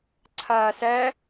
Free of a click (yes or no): no